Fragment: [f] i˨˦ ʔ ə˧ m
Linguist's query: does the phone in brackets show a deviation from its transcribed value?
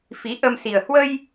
no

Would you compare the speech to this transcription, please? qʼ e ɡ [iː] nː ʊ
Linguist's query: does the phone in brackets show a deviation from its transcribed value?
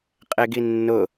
yes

